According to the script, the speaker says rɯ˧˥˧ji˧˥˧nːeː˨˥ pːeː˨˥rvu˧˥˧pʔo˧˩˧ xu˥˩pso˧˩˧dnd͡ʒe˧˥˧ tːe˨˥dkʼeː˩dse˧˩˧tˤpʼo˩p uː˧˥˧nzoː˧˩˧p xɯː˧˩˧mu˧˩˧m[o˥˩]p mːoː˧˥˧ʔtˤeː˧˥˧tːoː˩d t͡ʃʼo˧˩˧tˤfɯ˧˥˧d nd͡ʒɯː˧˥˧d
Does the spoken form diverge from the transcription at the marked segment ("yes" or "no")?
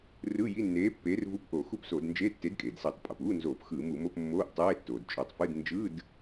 yes